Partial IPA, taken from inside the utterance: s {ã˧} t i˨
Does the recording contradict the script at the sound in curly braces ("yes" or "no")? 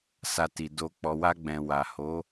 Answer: yes